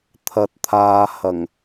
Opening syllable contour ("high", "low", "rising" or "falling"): low